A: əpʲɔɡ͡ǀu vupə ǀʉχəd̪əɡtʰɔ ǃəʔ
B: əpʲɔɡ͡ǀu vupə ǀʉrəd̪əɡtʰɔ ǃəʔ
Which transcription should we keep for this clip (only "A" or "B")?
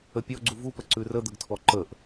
B